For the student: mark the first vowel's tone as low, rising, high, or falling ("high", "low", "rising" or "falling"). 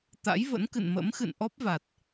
rising